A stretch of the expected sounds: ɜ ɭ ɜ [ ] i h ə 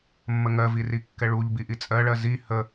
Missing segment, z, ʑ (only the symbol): z